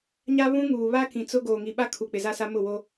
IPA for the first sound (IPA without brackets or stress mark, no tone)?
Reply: ɲ